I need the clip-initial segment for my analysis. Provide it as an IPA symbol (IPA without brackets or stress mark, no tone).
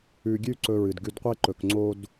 ʉ